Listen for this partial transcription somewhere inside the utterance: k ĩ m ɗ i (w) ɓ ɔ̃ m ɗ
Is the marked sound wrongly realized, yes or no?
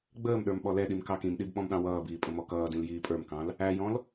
yes